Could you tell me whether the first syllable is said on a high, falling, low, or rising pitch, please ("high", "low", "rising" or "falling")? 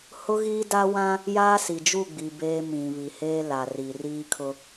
high